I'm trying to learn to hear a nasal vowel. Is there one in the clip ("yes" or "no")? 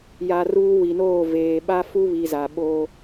no